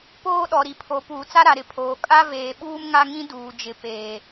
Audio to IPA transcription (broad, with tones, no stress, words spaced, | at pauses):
poː˦ɗɔ˨ɾi˨ pʰo˨˦puː˨t͡sa˦ ɾa˨ɾɪ˨pʰoː˨ kʼa˦veː˨ ɓuː˦mŋa˦ŋĩ˦ duː˨d͡ʒɪ˨˦ peː˨